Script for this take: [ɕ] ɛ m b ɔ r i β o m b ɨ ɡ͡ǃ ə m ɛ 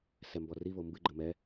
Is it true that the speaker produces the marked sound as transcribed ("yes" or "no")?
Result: no